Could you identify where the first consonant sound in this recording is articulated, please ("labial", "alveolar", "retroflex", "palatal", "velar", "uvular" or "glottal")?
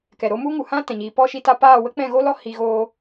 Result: velar